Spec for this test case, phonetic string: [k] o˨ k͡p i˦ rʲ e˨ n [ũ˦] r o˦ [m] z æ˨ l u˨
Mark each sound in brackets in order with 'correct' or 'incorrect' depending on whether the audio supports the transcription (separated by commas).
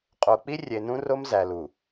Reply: incorrect, correct, correct